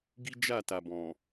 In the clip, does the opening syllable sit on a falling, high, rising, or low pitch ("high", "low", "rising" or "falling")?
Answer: high